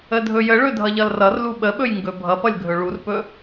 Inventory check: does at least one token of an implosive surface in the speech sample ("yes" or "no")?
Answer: yes